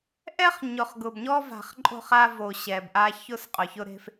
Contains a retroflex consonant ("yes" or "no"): no